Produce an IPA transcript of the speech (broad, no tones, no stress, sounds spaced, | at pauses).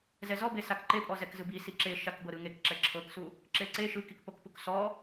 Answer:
z ɛ z ɔ b e s a k ǃ e pʼ ɔ z ɛ k z ɯ b i s i ǁ e ʃ a k b ɤ ɾ ɯ ŋ e k ǁ ɛ ǁʰ ɤ k s u | ǁ e ǀ e ʃ ɯ k i k p o k p u k s ɔ